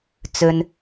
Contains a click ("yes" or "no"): no